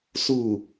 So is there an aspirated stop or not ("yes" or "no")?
no